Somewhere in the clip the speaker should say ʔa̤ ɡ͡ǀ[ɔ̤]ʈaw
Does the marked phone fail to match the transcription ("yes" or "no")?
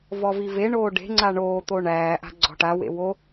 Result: no